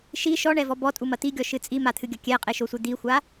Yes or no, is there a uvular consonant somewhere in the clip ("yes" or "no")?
yes